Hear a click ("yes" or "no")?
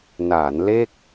no